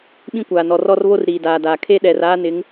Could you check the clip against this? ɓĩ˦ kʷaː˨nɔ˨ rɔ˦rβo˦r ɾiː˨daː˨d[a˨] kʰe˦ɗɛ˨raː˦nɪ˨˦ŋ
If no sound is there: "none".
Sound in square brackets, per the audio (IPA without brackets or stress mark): aː˨